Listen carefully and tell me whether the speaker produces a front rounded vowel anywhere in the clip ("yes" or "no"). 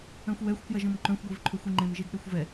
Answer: yes